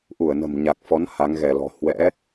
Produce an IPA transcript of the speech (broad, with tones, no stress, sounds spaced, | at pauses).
ʔ u˧˩ ə̯ n ə̤˨˩ m ɲ a˨˩ k̚ f ɔ˨˦ n h a˨˦ ŋ ɣ ɛ˧˩ l ɔ̤˨˩ h w ɛ̰˧˥